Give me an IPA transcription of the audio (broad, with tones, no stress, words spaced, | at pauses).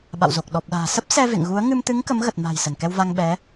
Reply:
ɓa̰˧˨wzo˨˩k̚ ɗɔ˨˩p̚ɗa̤ː˨˩ sə˦˥p̚sɛ˧ vḛ˧˨ŋɣu˨˦ə̯ ŋɨ˧mt̪ɨ˨˦ŋ kə˨˦mɣə˨˩t̚ma̤˨˩j sə˧˩nkɛ˧wva˧ŋ ɓɛ˨˦